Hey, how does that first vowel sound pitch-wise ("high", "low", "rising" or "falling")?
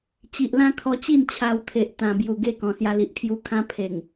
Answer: low